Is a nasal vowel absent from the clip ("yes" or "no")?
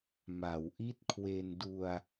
yes